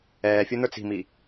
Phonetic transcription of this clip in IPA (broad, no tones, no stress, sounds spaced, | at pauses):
ɛː fʲ u n̪ ə˞ t͡s i̤ m i